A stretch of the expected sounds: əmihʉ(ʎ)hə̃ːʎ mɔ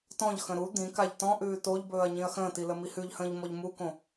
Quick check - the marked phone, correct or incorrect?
correct